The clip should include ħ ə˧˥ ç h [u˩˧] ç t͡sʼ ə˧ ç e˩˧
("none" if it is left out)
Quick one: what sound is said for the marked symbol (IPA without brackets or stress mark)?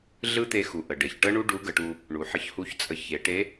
u˧˥